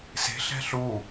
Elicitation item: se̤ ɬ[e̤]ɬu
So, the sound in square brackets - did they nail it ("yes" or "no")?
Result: no